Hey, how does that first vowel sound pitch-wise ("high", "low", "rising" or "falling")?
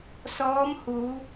rising